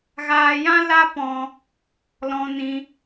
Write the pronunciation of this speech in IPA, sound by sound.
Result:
ɣ aː˧ j ã˦ l a˦ p ɔ̃˧ | l ɔ̃˧ n ĩ˧

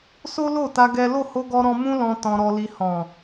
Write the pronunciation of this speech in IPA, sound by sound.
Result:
s o˦ l o˦˨ t a˧ ɡ ɛ˦ l o˦˨ h o˧ ɡ ɔ˧ ɾ ɔ̃˧ m ũ˦ l ɔ̃˧ t ɔ̃˧ ɾ ɔ˧ l i˧ h ɔ̃˨

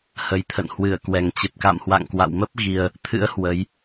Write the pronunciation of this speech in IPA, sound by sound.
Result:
h ə˨˩ j t̪ʰ ə̰˧˨ n h w ɨ˧˩ ə̯ k w ɛ˨˩ ŋ t͡ɕ e˨˩ p̚ k a̰˧˨ m h w a̰˧˨ ŋ k w a̰˧˨ w m ə˦˥ p̚ ɣ i˧ ə̯ | t̪ʰ ɨ̰˧˥ ə̯ h w ə˨˦ j

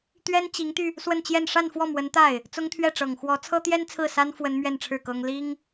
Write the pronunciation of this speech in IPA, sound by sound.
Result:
t̪ ɥ ɛ˥ n t͡ɕ i˧˥ ŋ t̪ y˧ | s w ə˥˧ n t͡ɕ j ɛ˥˧ n ʂ a˥˧ n f w ɔ˥˩ m w ə˧˥ n t̪ a˥˩ ɪ̯ | t͡s ʊ˥ ŋ t̪ʰ ɥ ɛ˥˩ ʈ͡ʂ ɤ˨˩ ŋ x w ɔ˧˥ t͡sʰ ɤ˥ t̪ j ɛ˥ n t͡sʰ ɹ̩˥˩ s a˥ n f w ə˥ n m ɥ ɛ˥˧ n ʈ͡ʂʰ ɻ̩˥˩ k ɤ˥ ŋ l i˥ ŋ

